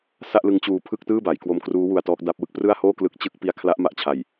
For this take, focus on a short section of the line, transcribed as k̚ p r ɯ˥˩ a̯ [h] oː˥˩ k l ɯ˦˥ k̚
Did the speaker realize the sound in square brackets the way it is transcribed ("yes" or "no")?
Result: yes